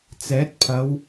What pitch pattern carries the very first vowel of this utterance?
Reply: rising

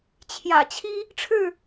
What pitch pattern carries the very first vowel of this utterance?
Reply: low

